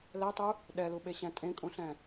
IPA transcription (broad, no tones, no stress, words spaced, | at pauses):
lɛtˤu | ɗɛluɓeɕɛ̃ tʼẽkʼũɬɛ̃